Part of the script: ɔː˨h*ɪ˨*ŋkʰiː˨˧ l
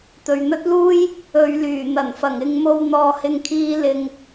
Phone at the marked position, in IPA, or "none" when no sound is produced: ɪ˨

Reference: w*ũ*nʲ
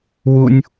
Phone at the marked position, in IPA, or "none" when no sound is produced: u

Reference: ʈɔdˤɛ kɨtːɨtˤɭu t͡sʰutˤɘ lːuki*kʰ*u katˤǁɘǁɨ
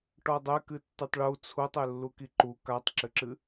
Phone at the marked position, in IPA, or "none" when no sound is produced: ǃ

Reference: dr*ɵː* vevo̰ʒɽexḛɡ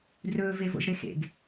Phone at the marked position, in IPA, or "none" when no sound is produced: ɵː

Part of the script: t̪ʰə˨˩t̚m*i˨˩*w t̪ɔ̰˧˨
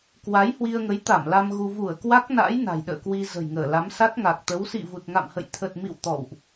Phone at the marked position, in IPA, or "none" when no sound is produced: ḭ˧˨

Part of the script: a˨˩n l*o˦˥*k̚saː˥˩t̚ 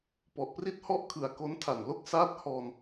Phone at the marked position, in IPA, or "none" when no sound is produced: o˥˩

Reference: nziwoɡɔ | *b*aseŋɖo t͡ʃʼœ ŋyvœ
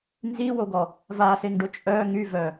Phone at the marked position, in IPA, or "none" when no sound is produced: v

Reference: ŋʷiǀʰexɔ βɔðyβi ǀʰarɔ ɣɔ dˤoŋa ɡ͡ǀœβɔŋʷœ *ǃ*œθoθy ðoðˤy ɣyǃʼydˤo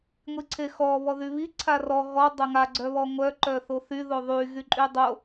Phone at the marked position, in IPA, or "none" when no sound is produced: ǃ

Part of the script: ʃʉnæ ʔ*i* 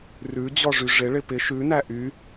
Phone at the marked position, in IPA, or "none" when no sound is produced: y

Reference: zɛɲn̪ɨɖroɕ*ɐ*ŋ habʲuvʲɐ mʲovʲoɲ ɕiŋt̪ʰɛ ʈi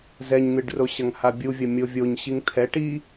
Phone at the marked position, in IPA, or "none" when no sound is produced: ɐ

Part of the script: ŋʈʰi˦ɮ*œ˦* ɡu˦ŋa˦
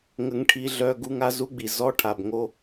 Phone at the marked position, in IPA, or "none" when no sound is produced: œ˦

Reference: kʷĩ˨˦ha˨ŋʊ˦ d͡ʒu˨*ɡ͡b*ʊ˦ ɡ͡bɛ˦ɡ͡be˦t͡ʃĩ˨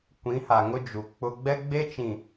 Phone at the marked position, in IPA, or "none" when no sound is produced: k͡p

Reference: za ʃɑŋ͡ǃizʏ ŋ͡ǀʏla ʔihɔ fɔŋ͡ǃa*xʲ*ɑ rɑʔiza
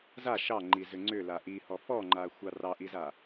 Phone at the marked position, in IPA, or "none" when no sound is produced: xʷ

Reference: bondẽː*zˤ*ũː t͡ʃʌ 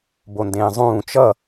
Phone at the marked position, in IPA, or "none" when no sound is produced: zˤ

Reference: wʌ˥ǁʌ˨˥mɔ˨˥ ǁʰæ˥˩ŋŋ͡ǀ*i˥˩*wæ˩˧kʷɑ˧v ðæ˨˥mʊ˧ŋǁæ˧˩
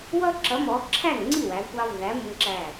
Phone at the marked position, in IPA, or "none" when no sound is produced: i˥˩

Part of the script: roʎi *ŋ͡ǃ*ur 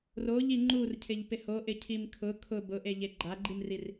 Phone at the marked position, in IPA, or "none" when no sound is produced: ŋ͡ǃ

